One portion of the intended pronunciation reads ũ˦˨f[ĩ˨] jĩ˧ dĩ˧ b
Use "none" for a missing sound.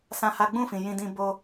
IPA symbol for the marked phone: ĩ˨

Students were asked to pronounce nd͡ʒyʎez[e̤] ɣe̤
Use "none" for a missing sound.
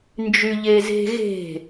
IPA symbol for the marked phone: e̤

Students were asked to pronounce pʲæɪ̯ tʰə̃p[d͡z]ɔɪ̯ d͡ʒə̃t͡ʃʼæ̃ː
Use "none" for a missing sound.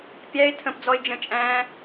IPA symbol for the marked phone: d͡z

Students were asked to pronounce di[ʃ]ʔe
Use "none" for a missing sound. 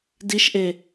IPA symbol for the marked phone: ʃ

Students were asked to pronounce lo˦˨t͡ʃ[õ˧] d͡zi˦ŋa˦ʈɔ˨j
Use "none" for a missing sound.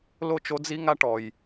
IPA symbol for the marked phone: o˧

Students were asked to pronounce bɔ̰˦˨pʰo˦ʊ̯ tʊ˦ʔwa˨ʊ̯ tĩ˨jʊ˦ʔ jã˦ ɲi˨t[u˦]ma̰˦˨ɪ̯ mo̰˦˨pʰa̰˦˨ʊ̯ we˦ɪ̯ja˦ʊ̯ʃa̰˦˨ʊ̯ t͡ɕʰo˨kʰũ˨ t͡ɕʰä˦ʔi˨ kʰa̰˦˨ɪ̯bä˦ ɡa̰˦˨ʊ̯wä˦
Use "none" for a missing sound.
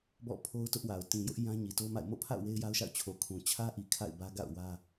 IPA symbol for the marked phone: o˦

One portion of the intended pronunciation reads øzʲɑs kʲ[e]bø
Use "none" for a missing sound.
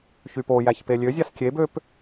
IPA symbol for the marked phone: e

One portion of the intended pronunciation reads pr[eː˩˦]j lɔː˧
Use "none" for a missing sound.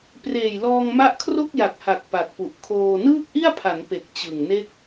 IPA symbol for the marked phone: eː˨˩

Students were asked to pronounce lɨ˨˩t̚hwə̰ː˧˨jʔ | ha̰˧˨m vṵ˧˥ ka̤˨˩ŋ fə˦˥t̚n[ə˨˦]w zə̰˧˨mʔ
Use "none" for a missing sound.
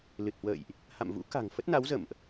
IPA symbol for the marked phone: a˨˦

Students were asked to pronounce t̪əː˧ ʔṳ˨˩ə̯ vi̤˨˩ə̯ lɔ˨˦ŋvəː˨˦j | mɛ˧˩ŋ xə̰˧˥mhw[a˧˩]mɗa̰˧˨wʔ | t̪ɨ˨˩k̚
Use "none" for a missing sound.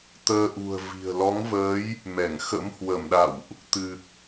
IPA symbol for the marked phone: ə˧˩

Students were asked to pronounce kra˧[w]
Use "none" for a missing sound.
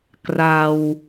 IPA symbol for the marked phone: w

